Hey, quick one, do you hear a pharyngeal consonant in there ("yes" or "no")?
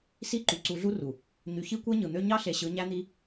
no